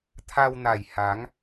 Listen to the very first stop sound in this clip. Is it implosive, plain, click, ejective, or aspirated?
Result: aspirated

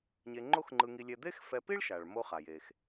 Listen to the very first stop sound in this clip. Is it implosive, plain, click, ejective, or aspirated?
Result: click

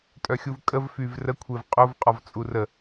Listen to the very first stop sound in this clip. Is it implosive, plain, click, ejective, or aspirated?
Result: ejective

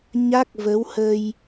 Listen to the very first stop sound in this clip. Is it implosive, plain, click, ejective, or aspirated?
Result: plain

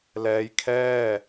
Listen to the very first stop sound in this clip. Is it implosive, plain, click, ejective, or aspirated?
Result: aspirated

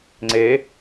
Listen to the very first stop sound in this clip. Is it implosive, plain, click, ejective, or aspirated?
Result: click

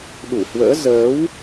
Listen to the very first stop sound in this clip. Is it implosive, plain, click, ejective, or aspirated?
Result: implosive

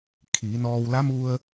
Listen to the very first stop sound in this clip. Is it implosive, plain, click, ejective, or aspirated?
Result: aspirated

